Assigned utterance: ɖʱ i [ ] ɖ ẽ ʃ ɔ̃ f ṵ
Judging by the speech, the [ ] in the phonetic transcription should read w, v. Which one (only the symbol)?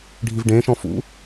v